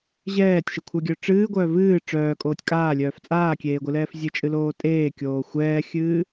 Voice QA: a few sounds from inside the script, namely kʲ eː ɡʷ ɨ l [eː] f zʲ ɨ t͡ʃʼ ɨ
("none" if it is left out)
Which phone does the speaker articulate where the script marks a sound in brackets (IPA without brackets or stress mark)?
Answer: ɛː